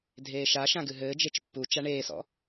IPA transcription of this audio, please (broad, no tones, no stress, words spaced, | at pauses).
dʱeːʃaʃã ɡɨɦɘːd͡ʒet͡ʃ pːu t͡ʃaɳeːsɔ̰